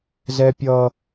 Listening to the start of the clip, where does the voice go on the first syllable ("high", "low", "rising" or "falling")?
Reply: high